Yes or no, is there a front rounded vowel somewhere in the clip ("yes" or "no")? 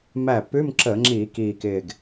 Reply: no